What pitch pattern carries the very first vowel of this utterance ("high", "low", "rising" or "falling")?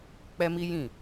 high